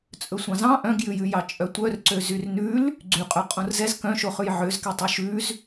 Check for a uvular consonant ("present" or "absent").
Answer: present